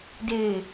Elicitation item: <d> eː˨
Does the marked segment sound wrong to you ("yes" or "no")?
no